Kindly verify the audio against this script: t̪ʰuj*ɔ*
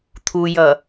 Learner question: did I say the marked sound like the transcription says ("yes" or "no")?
no